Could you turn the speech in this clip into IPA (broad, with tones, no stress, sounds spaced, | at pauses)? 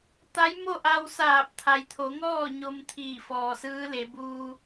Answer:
t̪ a˧˥ j m o˥˨ ʔ a˧ w s aː˧˩ p̚ t̪ʰ a˩ j t̪ʰ o˩˧ ŋ ɔː˥˨ ɲ o˧ m t̪ʰ iː˧˩ f ɔː˩ s ɯː˧˥ l e˩˧ b uː˧